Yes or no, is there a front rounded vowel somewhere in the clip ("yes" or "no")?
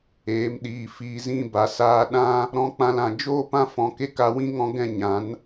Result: no